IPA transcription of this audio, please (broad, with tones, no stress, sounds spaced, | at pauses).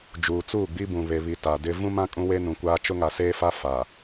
d͡ʒ uː˨ t͡s uː˦˨ ɡ͡b i˦ b ũ˨ β e˨ β i˨ t a˨ d ɪ˦ v ũ˦ m ã˦ kʼ ũ˦ w e˦ n ũ˨ kʷ aː˦ t͡ʃ ʊ˦ ŋ a˨ s eː˦ f a˦ f a˨